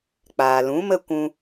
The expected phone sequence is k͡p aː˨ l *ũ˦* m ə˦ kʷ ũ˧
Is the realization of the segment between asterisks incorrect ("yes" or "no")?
yes